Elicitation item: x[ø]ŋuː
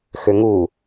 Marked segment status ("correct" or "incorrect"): correct